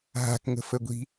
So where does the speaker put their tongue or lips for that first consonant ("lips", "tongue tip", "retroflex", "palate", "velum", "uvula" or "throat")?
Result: throat